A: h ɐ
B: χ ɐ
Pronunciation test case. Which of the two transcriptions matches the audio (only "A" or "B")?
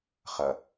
B